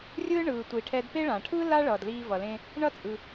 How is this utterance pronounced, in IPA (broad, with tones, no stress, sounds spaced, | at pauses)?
rʲ ɯː˥ ɳ ɯː˩ tʷ i˩ ʈʰ ɛ˧ d p e˥ ɭ ãː˩ ʈʰ ɯː˥ l a˥ ɭ ʌː˩ d l iː˧ v ʌ˩ l ẽ˧ | ɳ ʌ˥ t͡sʼ ɯ˩